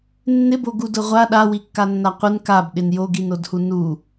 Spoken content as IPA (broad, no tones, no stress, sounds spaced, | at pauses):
nː ɪ b o ɡ u d ʊ ʁʷ a ɗ a w i kː a nː a qʷ ɪ n k a b ɗ ɪ n j o ɡ i n o d h u n u